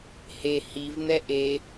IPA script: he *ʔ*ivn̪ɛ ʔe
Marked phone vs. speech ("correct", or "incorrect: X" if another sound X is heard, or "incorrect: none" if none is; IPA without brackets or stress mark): incorrect: h